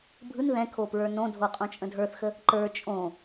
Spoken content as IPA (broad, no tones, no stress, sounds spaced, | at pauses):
bʱ ɯ n ð ɛ̃ kʰ o p ɹ ə˞ n õ dʱ o qʼ õ t͡ʃʼ ə̃ dʱ ə˞ θ x ə | ǃ ə˞ t͡ʃʼ õ